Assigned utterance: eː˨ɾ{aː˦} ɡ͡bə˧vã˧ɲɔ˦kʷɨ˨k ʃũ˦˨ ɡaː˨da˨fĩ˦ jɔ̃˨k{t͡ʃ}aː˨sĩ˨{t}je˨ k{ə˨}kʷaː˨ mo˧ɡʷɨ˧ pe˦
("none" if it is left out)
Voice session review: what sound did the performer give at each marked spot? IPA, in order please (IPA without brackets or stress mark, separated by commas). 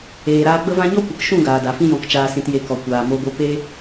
aː˧, t͡ʃ, t, ɔ˨